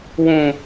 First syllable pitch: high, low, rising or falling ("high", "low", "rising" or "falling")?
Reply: low